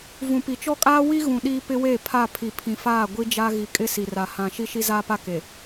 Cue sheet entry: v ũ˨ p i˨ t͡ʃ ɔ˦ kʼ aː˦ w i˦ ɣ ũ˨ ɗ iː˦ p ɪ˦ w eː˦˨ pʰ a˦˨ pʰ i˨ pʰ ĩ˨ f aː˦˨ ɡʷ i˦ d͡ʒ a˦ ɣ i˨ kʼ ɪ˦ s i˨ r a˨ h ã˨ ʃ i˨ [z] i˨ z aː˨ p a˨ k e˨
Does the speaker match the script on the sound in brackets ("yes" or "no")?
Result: no